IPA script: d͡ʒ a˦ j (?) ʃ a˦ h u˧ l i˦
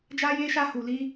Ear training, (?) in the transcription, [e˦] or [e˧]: e˦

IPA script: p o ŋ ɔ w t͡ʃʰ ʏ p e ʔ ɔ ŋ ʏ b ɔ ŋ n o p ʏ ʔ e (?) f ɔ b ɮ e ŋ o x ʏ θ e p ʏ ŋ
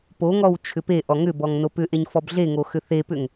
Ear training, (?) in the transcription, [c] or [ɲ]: ɲ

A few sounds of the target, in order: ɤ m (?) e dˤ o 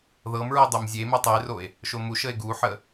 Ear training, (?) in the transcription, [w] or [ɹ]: ɹ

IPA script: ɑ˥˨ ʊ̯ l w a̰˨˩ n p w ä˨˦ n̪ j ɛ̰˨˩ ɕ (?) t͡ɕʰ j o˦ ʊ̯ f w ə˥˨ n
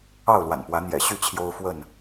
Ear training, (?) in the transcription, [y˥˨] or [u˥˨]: y˥˨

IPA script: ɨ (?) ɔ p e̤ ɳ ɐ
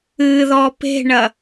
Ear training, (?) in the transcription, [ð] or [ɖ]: ð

